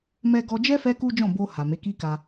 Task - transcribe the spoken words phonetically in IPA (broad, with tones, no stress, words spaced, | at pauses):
mɛ˧ɡɔ˧d͡ʒɛ˦ fɛ˦ku˦d͡ʒɔ̃˦˨ bo˧ ha˨me˨˦ ki˦ka˧